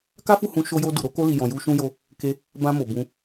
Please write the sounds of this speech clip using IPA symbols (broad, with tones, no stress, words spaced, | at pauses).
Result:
ka˦fu˦˨ hũ˧ ʃo˧jo˧ du˨ɾo˧ko˧li˨ jɔ̃˨ju˧ ʃũ˧jo˧ | ke˧ | bã˧mo˨ bũ˧